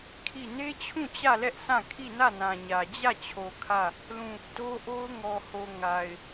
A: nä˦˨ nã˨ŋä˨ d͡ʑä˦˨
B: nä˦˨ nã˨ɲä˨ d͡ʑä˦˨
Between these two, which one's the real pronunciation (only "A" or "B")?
B